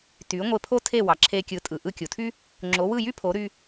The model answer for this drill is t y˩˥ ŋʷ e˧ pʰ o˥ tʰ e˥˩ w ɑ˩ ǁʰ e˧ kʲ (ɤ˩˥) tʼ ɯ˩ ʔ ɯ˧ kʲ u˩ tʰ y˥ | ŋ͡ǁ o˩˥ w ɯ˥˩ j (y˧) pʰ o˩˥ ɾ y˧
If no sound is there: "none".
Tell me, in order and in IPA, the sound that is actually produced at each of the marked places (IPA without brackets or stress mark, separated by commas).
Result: ɯ˩˥, y˥